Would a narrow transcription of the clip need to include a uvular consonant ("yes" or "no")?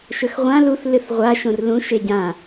yes